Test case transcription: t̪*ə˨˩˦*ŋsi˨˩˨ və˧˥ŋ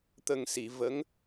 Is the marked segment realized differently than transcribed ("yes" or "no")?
yes